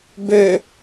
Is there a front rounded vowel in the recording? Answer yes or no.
yes